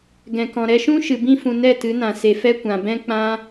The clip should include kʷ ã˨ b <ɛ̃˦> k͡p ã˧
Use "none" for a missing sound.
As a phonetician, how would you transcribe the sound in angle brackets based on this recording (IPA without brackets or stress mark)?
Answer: ɛ̃˧